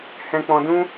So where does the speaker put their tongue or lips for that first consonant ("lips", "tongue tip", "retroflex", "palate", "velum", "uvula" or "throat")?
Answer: throat